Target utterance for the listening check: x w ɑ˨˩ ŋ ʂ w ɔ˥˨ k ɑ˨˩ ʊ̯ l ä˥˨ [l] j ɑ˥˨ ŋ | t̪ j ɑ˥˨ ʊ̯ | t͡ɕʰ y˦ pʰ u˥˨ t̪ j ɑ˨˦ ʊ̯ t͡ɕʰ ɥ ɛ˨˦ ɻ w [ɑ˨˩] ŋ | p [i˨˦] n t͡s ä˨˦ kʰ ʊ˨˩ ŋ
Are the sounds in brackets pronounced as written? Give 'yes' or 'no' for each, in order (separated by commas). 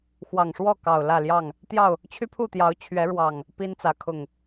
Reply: yes, yes, no